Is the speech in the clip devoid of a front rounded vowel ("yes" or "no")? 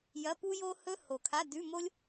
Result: yes